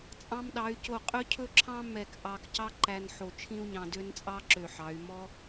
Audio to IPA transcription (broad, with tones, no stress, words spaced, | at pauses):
t͡sʼɑ̃˧mɗɑ˩˧y̯ co˧˩ qʼɵ˧cʰɵ˧ǁʰɑ̃˧ mɛ˧˩kʔɑ˧kcɑ˥ǃæ˧n ħo˧t͡ʃʰĩ˥u̯ɲɑ̃˧dø˥n t͡sʼɑ˥ǁø˧˩ħɑ˩˧y̯ mɔ˥